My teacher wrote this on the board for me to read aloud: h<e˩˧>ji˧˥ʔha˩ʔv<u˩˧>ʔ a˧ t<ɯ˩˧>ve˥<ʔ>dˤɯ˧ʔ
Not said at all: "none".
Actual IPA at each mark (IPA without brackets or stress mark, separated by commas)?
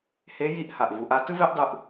e˧˥, u˩˧, ɯ˥, ʔ